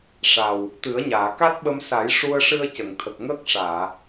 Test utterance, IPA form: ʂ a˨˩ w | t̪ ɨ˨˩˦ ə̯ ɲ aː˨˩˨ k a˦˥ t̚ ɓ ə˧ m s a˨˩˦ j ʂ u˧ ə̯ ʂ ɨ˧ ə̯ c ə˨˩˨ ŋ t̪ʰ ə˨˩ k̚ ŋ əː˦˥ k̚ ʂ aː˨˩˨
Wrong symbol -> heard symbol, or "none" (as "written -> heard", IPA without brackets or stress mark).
none